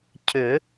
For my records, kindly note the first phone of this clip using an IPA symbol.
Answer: cʰ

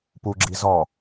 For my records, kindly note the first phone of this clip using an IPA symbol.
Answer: p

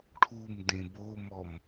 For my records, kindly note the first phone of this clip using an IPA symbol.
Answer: ʈʰ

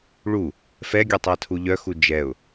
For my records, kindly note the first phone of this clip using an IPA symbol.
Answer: ɭ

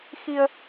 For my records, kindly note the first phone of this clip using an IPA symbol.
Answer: x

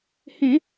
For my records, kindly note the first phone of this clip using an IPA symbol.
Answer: h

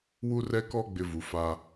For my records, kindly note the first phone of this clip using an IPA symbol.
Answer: w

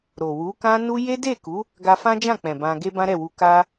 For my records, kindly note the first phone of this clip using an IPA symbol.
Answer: ɾ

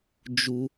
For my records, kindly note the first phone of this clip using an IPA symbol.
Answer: d͡ʒ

